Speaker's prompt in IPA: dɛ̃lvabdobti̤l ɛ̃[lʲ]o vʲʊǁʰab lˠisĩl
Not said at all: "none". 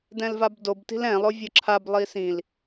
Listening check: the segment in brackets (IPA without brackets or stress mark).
lˠ